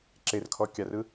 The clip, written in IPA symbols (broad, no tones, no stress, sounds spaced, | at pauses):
ǁ e r kʰ ɔ kʲ a r ɯ